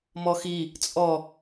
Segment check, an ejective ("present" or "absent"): present